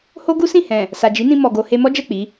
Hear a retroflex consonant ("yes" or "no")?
no